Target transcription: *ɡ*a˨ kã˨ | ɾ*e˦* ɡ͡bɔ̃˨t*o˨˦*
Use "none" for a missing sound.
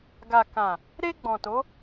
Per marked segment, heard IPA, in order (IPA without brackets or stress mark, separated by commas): ɡ, e˧, o˨˦